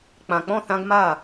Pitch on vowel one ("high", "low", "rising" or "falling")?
low